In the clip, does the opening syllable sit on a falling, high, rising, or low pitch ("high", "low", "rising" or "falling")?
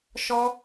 high